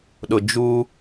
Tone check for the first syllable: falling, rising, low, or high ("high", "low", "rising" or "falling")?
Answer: low